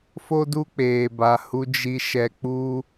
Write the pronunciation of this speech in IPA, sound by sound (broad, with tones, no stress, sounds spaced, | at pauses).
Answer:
f o˦ d u˦ k͡p eː˨ b a˨ h u˧ d͡ʒ i˧ ʃ ɛ˧ k͡p u˦